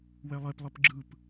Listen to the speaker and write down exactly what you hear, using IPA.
w ɛ lˠ e p lˠ ɨ p ɡ͡ǁ ɯ p

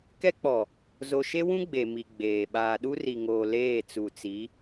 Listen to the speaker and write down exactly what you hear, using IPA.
k ɛ˦ k͡p ɔ˨ | z o˨ ʃ e˦ w ũ˦ ɡ͡b e˨ m i˨ ɡ͡b eː˨ ɓ aː˨ ɗ u˦ r i˨ ŋ oː˨ l eː˦˨ t͡s u˨ t͡s i˨˦

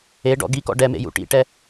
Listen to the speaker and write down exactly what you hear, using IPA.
e ɖ ɔ̰ ɡ i k ɔ̰ ɖ ɛ m ḛ j ṵ ʈ ḭ ʈ ɛ

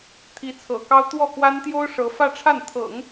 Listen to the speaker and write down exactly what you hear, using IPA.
t̪ʰ i˧˥ t͡sʰ ɤ̰˨˩ k ɑ˥ ʊ̯ t̪ w ɔ˥˩ k w a˥ n t̪ j o˥ ʊ̯ ʂ ɤ˧˥ f ä˥˧ ʈ͡ʂʰ a˥˩ n t̪ʰ ɤ̰˨˩˦ ŋ

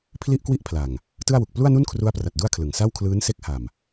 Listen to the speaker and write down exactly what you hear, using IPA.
pʰ l i˥˩ ʔ k w i˥˩ ʔ pʰ l a˨˩ ŋ | t ɯ˥˩ a̯ w u˨˩ k̚ p l u˥˩ a̯ n u˥˩ n kʰ r u˦˥ a̯ p r a˨˩ t̚ d u˥˩ a̯ kʰ l ɯ˨˩ ŋ s a˥˩ w kʰ l ɯː˦˥ n s e˦˥ k̚ h a˨˩ m

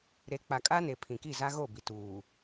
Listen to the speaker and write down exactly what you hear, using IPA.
ɾ e˨˦ k͡p a˨ kʼ a˦ n e˨ pʰ ĩ˨ k i˦˨ z a˦ ɣ o˦˨ b i˨ t uː˨

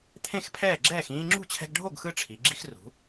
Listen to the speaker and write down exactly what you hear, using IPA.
t̪ʰ ẽ˥˨ x pʰ ɛː˥˨ ɡ͡ǁ ɛː˥˨ x ĩː˦ ŋ͡ǁ ṳ˥˨ t͡ɕʰ ɛ̤˦ ɡ ɖʱ o˥˨ ɡ x ɯ˦ ʈ͡ʂʰ i˩˧ ɡ͡ǁ i˦ x r ṳ˩˧

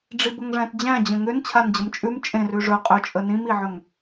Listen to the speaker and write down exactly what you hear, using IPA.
ɖ͡ʐ i b ə ŋ ʐ æ̃ t d͡ʑ æ̃ d͡ʑ ə̃ ŋ ʏ n t͡ɕʰ a n d͡ʑ ə m t͡ʃʼ ʉ m t͡ʃʼ ẽ r ʉ ʐ ɵ qʼ ʏ t͡ʃʼ ə n ĩ m i ʕ ɵ ŋ

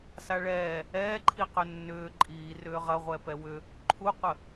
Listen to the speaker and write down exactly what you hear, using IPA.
s a ɭ ɛː | ɛː ǃʰ i q ʏ nː ʏː ǃʼ iː r ʏː ʁ ɐ ʁʷ ɛ p ɛ w ʏ | ǃʰ u qʷ ə

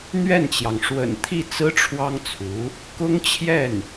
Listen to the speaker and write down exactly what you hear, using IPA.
n̪ ɥ ɛ˥˩ n t͡ɕ j ɑ˩ ŋ ʂ w ə̰˨˩ n t̪ʰ i˥˩ t͡s ɹ̩˥ ʈ͡ʂʰ w ɑ˥ ŋ t͡sʰ u˧˥ | k ʊ˥ ŋ t͡ɕʰ j ɛ˥˩ n

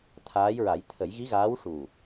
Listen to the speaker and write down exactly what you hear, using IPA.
t̪ʰ aː˧˥ j ɹ a˨˩˦ j t̪ʰ ə˨˩˦ j ɣ i˧˥ ɣ aː˧˥ w ʂ u˨˩

